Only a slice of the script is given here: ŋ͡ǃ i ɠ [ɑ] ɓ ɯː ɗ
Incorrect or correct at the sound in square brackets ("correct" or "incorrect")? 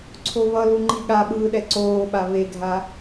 incorrect